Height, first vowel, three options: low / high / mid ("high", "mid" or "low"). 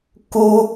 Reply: high